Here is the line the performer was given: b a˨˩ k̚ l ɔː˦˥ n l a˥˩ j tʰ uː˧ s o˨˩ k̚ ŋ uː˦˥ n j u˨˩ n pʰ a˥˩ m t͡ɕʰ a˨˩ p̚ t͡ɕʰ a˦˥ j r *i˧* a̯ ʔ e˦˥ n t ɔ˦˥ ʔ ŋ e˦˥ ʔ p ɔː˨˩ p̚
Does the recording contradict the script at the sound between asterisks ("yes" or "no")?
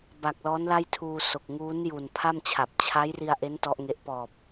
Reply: no